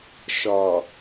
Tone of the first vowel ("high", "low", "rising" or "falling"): low